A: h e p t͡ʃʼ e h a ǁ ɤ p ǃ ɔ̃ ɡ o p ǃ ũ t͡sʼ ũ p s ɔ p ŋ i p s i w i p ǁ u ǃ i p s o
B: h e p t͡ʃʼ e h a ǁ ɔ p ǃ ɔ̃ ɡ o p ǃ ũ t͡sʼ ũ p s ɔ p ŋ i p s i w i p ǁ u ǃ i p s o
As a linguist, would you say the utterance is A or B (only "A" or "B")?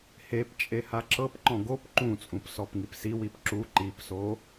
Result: A